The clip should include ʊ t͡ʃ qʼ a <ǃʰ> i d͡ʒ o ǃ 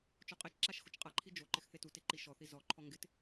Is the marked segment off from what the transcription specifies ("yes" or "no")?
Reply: no